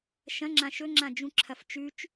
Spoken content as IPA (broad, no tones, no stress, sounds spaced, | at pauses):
ʃ ɐ̃ ŋ͡ǁ ã ʃ ɵ ŋ͡ǁ ã d͡ʒ ũ ǁʰ ɐ f t͡ʃ ʉ t͡ʃ